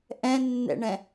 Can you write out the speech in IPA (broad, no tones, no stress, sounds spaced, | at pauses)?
ʔ ɛ̃ nː ɛ̰ ɳ ɛ̃